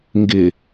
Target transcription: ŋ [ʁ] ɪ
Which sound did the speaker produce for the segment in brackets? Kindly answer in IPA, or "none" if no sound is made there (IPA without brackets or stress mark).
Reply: ɡ